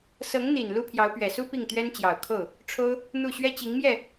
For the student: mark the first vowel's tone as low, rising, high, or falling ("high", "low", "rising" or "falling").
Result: rising